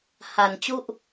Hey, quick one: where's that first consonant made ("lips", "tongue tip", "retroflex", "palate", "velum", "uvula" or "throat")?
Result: throat